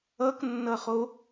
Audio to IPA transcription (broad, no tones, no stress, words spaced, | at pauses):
ʌknːʌχo